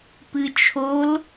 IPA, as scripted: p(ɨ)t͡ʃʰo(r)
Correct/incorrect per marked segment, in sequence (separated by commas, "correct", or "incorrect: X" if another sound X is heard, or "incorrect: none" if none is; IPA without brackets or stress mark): correct, incorrect: l